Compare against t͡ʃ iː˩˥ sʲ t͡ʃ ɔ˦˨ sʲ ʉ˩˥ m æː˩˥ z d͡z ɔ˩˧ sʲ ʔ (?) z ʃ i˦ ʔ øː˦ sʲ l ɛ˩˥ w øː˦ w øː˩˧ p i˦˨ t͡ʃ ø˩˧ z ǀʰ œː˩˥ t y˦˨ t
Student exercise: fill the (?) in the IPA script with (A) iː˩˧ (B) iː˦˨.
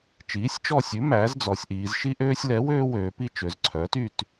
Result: A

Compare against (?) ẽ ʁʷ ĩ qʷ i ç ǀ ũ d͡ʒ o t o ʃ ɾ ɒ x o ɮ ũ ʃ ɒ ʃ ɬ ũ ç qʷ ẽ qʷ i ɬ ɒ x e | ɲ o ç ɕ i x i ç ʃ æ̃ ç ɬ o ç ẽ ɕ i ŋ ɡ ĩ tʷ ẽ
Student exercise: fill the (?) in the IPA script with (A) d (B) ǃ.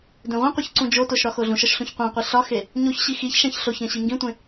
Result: A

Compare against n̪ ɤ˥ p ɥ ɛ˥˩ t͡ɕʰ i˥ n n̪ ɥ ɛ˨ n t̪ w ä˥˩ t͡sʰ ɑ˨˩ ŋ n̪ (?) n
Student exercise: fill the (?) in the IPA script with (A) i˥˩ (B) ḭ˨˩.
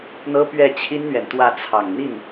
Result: A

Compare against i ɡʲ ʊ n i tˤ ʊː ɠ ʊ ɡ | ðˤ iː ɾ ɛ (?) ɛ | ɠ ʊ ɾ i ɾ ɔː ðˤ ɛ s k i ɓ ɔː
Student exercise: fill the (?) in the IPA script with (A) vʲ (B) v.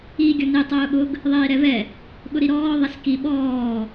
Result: B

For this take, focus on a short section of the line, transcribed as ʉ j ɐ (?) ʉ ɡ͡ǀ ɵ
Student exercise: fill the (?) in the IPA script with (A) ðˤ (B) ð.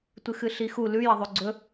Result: A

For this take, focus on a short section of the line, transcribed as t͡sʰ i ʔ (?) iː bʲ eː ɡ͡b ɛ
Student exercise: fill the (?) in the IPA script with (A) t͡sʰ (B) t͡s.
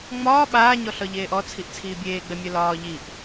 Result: A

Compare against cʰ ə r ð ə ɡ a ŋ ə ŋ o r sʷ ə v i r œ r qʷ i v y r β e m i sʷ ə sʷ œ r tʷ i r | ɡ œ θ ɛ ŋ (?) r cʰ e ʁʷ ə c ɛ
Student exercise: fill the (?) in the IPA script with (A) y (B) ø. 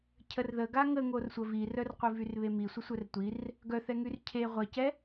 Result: A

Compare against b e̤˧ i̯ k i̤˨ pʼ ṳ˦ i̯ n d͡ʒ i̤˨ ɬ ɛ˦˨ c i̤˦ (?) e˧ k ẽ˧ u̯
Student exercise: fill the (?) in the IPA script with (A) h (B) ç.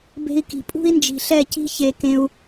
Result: B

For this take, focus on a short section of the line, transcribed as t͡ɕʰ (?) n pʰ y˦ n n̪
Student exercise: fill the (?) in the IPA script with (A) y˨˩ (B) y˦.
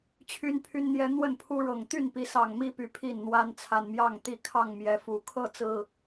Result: B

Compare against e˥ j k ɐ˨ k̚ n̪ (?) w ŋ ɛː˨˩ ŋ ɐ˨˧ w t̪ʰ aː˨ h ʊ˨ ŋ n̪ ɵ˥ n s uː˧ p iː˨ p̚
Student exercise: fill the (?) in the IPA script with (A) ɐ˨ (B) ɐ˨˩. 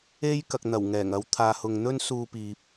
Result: B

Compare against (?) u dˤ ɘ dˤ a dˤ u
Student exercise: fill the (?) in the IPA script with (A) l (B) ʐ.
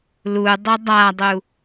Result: A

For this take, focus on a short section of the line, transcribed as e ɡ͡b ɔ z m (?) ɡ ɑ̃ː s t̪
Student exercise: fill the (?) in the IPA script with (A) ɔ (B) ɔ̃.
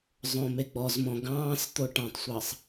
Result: B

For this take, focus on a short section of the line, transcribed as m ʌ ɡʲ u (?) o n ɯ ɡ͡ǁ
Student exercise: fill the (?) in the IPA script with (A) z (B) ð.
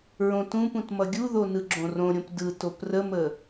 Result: B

